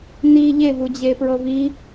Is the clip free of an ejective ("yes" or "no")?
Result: yes